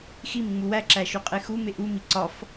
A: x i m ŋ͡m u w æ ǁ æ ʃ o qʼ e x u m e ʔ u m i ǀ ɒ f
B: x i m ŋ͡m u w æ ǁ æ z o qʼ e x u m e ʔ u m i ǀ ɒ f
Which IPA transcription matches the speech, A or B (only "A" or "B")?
A